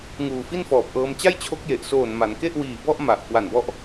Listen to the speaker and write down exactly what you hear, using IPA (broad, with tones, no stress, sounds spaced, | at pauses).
ŋ uː˨˩ f i˥˩ n f ɔː˨˩ p̚ ʔ ɤː˧ m t͡ɕ a˥˩ j t͡ɕʰ o˦˥ k̚ j e˨˩ ʔ s oː˨˩ n m a˩˦ n k e˥˩ ʔ w iː˨˩ b ɔ˥˩ ʔ m a˨˩ ʔ k w a˨˩ n b ɔ˦˥ ʔ